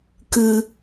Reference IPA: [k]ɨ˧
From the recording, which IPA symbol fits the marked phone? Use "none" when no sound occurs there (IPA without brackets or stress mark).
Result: k